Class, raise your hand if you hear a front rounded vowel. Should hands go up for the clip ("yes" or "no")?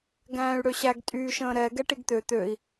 yes